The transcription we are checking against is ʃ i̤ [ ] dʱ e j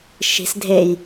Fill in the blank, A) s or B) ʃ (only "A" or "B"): A